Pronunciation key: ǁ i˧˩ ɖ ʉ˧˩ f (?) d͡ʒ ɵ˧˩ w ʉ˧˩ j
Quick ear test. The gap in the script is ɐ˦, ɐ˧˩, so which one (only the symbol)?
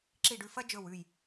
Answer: ɐ˦